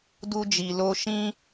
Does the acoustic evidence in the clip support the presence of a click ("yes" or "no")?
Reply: no